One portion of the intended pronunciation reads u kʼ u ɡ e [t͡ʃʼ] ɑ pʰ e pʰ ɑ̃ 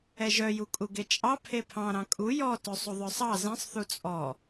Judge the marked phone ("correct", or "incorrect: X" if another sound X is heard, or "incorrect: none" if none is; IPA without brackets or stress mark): correct